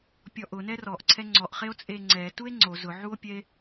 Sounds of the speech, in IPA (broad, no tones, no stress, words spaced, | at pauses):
pʲɔʔʊ nɛrɔʔ ǀʰɛŋ͡ǀɔʔχeo̯ t͡sʼeŋ͡ǀɛtue̯ ŋ͡ǀo zʊʕuo̯pʲɛe̯